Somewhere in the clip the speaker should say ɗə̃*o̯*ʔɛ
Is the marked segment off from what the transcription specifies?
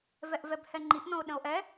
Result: no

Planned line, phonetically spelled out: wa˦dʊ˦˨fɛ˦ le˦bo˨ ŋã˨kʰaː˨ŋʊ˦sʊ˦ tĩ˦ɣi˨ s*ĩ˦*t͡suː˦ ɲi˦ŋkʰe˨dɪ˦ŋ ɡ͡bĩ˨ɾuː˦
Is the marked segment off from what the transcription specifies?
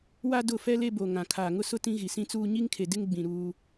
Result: no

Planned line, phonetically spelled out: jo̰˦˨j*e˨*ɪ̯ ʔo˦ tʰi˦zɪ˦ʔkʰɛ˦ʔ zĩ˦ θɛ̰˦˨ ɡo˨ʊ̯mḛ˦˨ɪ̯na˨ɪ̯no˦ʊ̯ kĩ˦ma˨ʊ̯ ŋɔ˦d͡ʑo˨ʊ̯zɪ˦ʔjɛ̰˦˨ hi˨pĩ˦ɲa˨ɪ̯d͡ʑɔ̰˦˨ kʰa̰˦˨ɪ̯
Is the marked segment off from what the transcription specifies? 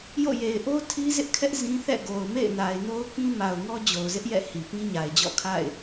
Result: no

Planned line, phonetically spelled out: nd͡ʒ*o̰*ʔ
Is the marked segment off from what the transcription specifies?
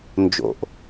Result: no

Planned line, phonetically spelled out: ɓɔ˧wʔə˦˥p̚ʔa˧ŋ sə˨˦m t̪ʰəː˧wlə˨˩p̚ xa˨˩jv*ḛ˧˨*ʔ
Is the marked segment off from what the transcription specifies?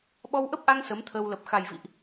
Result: yes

